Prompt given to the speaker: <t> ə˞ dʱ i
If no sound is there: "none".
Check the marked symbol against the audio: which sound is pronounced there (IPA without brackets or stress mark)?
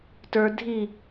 t